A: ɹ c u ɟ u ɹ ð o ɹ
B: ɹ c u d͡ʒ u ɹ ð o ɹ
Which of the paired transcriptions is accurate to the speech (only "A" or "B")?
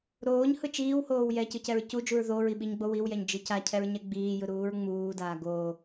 B